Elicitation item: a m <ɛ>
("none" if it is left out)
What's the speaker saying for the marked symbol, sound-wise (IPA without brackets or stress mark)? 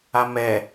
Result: ɛ